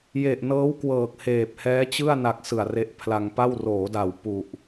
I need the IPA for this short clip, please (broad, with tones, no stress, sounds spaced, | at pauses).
j e˨˩ ʔ n ɤː˦˥ w k w ɤː˨˩ k̚ h eː˨˩ p̚ h ɛː˦˥ t͡ɕ ɯ˥˩ a̯ n a˨˩ k̚ s ɯ˨˩ a̯ r e˦˥ ʔ pʰ l a˧ ŋ p a˥˩ w r oː˩˦ d a˨˩ w p u˨˩ ʔ